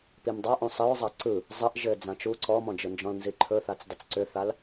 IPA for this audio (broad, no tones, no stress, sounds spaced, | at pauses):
p i m dˤ a ʔ ũ sˤ ɘ ɹ zˤ a ǀ ɯ | zˤ ɘ ʔ ʒ ɘ d͡z ã t͡ʃ u ǀ ɔ m ɔ̃ d͡ʒ ɯ n d͡ʒ ɔ̃ l n z i ǃʰ ɵ θ a t͡s dˤ ɯ t͡s ǀ ʏ θ a l